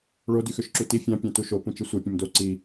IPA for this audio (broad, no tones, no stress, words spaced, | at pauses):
ɭo dyxøʃǁuti fʲɑ̃ pʲɑ̃tuʃo pũt͡ʃɯsʷe pʲõmdo ǀi